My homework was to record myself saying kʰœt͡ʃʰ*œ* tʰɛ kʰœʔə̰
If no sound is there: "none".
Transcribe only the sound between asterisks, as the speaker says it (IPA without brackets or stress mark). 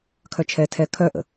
ɛ